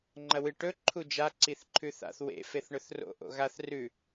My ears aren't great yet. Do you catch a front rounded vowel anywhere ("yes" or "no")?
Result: no